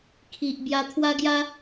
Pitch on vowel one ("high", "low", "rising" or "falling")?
low